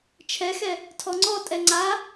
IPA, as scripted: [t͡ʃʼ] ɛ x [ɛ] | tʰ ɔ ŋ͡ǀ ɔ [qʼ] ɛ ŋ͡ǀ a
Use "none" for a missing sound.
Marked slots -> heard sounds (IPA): t͡ʃʰ, ɛ, tʼ

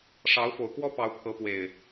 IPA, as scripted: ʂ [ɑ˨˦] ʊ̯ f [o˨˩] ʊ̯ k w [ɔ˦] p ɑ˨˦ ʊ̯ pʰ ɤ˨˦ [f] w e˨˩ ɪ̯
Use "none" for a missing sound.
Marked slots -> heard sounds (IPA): ɑ˨˦, o˨˩, ɔ˦, p

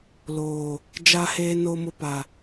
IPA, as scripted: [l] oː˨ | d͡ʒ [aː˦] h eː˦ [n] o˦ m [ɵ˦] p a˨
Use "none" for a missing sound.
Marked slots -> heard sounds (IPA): l, a˦, n, ʊ˦

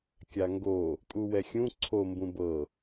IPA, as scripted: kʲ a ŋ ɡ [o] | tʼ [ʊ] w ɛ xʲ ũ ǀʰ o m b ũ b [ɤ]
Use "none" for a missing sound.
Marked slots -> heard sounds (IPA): o, u, ɤ

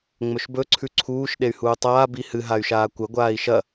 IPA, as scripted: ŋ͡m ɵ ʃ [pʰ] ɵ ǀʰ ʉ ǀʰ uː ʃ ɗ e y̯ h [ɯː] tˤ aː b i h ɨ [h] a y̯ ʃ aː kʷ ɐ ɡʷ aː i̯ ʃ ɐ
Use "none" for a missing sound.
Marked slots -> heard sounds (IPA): b, uː, ɦ

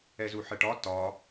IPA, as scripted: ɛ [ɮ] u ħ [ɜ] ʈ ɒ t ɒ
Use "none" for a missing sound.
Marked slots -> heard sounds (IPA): z, ɜ

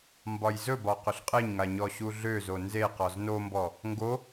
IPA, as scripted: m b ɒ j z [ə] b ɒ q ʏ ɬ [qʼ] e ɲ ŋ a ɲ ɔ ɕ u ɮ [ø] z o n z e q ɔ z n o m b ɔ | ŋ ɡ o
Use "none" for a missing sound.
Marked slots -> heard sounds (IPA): ɵ, qʼ, ø

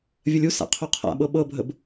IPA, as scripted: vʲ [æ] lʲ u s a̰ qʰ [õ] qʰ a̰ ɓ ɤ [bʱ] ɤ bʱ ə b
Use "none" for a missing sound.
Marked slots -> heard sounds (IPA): ə, o, ɓ

